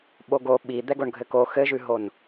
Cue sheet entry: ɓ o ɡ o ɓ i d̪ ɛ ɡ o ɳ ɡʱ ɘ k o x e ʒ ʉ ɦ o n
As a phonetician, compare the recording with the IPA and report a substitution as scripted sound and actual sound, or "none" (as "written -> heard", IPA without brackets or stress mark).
e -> ɘ